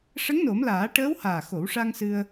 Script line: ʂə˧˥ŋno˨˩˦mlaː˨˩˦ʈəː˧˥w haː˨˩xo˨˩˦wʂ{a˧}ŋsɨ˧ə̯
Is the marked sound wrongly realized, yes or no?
no